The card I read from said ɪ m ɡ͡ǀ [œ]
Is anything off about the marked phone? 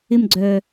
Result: no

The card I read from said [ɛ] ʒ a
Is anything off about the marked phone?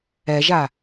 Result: no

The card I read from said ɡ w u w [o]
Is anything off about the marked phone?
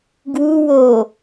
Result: no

